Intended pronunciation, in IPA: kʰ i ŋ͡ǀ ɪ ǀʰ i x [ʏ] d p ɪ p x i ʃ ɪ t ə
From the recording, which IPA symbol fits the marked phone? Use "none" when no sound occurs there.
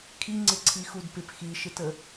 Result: u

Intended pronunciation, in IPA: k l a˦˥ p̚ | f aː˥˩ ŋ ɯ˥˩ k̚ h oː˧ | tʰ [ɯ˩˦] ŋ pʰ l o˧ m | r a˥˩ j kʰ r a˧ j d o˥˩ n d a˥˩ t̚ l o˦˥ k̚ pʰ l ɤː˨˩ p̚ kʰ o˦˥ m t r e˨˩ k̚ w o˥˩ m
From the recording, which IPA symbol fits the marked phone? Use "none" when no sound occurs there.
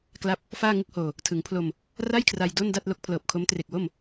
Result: ɯ˩˦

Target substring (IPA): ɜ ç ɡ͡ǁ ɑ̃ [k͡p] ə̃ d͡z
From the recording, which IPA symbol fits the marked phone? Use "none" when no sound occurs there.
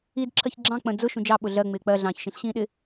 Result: k͡p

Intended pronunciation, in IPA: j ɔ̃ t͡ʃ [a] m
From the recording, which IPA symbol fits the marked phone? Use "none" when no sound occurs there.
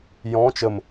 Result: ə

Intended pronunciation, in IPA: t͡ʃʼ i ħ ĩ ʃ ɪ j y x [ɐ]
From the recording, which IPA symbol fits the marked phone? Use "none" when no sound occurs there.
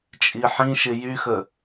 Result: ə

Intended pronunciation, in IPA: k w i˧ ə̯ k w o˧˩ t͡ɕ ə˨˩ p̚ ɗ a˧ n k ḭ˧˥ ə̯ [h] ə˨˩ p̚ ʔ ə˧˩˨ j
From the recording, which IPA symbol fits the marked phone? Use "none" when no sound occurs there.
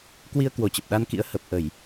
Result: h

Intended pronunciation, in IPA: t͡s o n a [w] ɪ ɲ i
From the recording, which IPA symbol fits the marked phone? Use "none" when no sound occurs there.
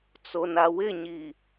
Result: w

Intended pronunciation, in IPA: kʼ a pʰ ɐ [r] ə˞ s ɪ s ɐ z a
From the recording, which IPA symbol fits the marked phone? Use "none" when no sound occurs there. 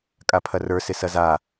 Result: r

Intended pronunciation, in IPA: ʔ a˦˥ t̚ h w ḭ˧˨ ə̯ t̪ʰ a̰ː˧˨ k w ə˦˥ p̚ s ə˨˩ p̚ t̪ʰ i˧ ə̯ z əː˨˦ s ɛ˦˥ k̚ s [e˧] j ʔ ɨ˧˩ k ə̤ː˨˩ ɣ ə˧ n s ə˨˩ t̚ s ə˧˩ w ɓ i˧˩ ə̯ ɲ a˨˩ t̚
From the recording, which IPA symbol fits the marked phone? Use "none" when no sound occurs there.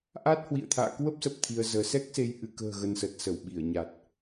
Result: e˧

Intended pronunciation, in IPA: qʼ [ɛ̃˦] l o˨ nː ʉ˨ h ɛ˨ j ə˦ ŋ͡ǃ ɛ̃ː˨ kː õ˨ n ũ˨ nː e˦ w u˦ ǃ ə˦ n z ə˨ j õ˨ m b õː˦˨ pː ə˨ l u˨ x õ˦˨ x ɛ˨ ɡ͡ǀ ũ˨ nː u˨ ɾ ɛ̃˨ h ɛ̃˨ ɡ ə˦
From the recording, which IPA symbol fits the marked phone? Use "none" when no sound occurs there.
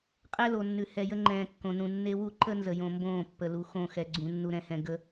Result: ɛ˦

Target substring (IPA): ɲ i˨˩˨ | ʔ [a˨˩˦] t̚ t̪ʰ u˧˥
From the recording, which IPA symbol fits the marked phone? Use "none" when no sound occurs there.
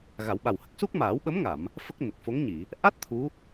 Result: a˦˥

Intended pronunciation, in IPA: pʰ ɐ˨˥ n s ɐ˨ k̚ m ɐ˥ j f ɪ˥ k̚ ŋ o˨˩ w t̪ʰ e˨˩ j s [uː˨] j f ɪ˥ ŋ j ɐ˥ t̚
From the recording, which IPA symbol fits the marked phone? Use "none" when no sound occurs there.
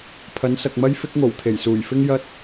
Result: uː˨˩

